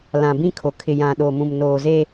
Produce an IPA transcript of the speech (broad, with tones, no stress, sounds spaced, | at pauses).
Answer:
l ã˨ b ĩ˦ kʰ o˨ kʰ ɪ˨ j ã˨ ɗ o˨ m ũ˨ m n oː˨ z e˦